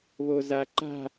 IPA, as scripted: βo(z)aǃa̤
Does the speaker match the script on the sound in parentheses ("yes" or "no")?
yes